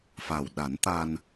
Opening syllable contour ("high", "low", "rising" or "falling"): low